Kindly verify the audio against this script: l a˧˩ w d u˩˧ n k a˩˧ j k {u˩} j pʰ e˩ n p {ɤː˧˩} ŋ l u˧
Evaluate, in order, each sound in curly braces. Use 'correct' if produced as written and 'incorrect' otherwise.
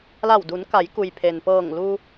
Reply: correct, correct

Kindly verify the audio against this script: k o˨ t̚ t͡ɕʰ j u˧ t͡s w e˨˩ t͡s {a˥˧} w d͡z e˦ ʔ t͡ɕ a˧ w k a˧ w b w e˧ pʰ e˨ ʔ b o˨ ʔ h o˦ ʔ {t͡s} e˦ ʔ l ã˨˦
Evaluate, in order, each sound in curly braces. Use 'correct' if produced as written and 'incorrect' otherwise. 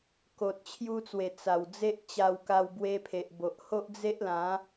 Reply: incorrect: a˨˩, incorrect: d͡z

